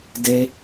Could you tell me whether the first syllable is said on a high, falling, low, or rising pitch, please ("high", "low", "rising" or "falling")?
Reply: high